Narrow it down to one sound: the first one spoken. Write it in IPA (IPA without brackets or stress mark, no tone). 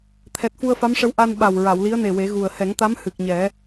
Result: t̪ʰ